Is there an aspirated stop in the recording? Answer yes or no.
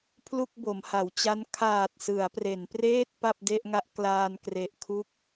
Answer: yes